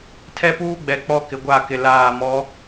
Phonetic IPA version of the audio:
tʰ ɛ˦ p uː˦ ɡ͡b ɛ˨ k͡p ɔ˦ k ɪ˨ ɡʷ a˦˨ k ɪ˨ l aː˦˨ m ɔ˨˦

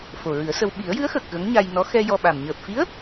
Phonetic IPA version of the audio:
f o˨˩ ɹ ɨ˨˩˦ ə̯ s ə˧ w ɓ i˨˩˦ ə̯ j ɨ˧˥ ə̯ x əː˨˩ k̚ ɣ ə˧˥ ŋ ɲ a˧ j n ɔ˧˥ x ɛ˧ j ɔ˧ ɓ a˨˩ m ɲ əː˨˩ p̚ f i˧˥ ə̯

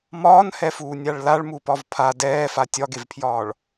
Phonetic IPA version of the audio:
m ɒː n h ɛ f uː nʲ a ɭ l a ɭ m u p ɒ v pʰ a d ɛː f a tʲ ɒ ɡ e v pʰ j ɒː ɭ

